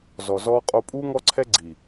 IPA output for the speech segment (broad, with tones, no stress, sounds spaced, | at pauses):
z ɔ˨ z ɔː˦ qʼ o˦ pʼ uː˦ ŋ ɔ˦ ǀʰ ɛ˦ ɡ͡ǀ i˨